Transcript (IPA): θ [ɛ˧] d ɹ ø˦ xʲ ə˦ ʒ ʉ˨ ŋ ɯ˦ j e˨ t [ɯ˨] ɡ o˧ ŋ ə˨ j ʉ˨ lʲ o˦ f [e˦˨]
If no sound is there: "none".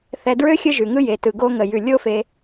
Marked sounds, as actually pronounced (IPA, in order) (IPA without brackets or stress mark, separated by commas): ɛ˧, ɯ˨, e˧